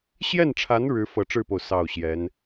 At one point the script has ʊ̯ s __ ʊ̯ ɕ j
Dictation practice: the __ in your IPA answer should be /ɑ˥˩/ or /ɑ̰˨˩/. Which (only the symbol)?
ɑ˥˩